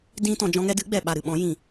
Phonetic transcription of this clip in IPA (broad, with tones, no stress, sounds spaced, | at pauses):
d ĩ˦ t ɔ̃˧ d͡ʒ ɔ̃˧ ŋ ɛ˧ d ɨ˨˦ ɡ͡b ɛ˨ ɓ a˨ ɾ ɨ˨ ɓ ɔ̃˨˦ j ĩ˨